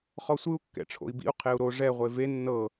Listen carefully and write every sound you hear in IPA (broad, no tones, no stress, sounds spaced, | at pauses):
χ ɔ sʷ ɯ u̯ kː ɛ̰ ʈ͡ʂʰ o̰ i̯ b ḭ u̯ qʰ e u̯ ɾ o ʐ ɛ ʁʷ e v e nː ɤ